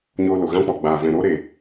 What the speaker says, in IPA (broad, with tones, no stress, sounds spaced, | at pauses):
ɲ oː˧ l o˨ ɣ ã˦ k͡p ɔ˨ ɡ͡b aː˨ v ɛ̃˨ ɾ o˦ ɾ e˨